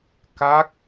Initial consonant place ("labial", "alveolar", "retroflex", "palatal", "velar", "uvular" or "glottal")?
velar